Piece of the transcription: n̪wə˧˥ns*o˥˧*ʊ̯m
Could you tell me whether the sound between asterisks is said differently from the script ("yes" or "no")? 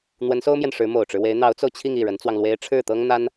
yes